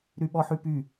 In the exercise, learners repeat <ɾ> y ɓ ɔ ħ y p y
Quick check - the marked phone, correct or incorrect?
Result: correct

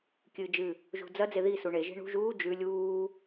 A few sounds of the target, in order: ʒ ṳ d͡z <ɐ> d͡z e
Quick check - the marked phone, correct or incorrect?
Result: correct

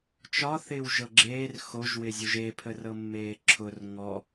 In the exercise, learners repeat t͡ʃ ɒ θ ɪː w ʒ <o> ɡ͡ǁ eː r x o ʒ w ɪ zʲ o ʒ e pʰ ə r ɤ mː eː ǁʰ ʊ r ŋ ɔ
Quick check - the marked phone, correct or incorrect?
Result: incorrect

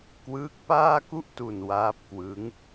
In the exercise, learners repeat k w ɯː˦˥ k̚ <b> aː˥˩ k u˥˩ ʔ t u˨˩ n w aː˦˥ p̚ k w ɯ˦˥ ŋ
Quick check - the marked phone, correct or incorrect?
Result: incorrect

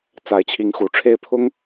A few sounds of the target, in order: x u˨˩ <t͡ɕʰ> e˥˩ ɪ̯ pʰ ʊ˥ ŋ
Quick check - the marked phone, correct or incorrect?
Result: incorrect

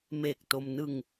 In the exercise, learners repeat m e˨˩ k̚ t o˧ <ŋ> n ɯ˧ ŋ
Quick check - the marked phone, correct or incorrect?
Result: incorrect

